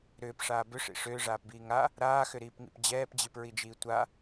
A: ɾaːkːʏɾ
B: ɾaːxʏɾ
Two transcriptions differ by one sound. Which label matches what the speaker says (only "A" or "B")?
B